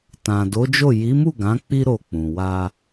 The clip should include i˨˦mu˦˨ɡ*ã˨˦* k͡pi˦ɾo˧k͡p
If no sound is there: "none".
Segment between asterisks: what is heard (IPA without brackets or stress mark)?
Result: ã˨˦